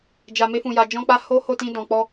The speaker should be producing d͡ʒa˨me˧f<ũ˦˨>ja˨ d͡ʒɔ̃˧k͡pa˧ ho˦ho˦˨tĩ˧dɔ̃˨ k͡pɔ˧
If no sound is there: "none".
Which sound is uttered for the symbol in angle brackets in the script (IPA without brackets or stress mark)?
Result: ũ˨